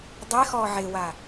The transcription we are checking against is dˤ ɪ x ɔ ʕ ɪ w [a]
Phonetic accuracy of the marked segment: correct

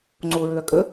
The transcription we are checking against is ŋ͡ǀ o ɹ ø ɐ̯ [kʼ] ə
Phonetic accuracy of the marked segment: correct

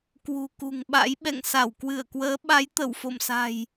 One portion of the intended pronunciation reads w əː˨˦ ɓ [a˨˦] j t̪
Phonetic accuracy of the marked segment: correct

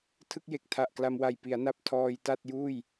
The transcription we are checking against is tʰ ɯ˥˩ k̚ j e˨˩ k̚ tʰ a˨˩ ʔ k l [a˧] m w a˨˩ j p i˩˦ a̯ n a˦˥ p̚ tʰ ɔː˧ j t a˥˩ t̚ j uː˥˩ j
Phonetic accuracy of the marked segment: correct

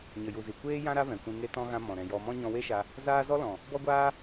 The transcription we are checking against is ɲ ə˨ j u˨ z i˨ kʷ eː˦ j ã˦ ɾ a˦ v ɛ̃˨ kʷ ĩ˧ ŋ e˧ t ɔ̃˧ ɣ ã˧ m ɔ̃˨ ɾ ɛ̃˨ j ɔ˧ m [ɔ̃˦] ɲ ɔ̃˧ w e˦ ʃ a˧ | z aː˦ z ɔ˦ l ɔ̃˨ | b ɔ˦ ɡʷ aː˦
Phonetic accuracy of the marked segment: correct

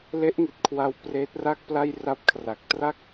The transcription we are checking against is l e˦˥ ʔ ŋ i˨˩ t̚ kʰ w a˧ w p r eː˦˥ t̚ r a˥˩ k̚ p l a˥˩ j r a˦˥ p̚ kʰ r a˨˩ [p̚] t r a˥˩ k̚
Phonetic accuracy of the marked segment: incorrect: k̚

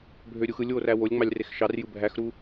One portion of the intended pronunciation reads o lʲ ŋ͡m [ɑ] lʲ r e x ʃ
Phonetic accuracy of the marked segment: correct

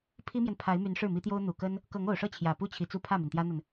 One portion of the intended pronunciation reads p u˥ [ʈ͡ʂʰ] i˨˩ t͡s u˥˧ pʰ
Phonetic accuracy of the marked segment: incorrect: t͡ɕʰ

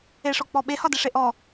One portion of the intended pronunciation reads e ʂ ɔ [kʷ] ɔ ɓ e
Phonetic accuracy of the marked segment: incorrect: k͡p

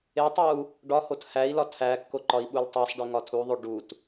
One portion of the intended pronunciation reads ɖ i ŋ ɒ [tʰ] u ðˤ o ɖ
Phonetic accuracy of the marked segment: correct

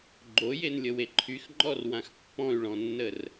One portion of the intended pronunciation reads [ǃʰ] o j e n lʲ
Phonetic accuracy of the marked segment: incorrect: ɡ͡ǃ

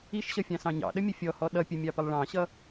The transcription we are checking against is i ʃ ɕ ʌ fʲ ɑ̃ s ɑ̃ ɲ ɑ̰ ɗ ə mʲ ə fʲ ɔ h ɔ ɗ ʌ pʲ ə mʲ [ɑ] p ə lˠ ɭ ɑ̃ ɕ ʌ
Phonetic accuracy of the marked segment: correct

